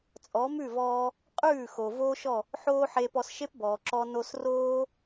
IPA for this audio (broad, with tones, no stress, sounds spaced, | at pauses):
t͡sʼ ɔ˩˥ m ʉ˥˩ v ɔː˧ | qʼ ʉː˥˩ x o˩ v oː˥ ʃ ɔ˥˩ | ħ oː˥ ħ eː˧ p ɔ˧ s ʃ e˥ p b ɔː˩ ǁ ɔ˧ n o˧ s r oː˥